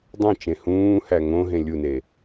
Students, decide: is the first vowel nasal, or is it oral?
nasal